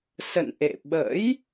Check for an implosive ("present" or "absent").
present